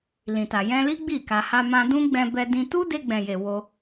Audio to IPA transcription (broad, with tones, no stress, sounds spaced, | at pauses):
l ĩ˨ t a˨ j ɛ̃˧ l i˦ ɡ͡b i˦˨ k a˧ h a˧ m ã˧ d ũ˦ ɡ͡b ɛ̃˧ b ɛ˧ d ĩ˧ t u˦ d e˧ ɡ͡b ɛ̃˨ j e˨ w o˧